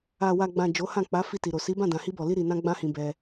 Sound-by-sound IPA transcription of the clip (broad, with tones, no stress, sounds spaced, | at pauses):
a˨ w a˨ ɡ͡b ã˨ d͡ʒ o˨˦ h ã˦˨ k͡p a˨˦ f i˦˨ t i˨ ɾ o˨ s i˨˦ b ã˦˨ d ã˨ h i˧ b ɔ˨ l i˧ ɾ i˧ n ã˦ ɡ͡b ã˦ h ĩ˧ b ɛ˧